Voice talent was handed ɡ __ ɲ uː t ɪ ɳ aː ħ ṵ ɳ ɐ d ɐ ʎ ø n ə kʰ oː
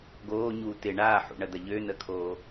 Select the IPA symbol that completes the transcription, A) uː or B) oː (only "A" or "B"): B